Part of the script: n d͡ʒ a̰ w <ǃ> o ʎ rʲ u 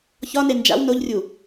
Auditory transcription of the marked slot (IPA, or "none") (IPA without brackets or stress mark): n